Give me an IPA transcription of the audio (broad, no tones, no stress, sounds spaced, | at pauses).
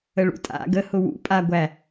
ə ɭ ṵ tʼ a̰ ɡ ə h ʊ w ṵ pʼ a ɡʷ æ